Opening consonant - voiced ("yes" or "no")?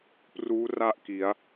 no